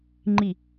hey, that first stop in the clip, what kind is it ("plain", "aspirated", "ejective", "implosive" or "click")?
click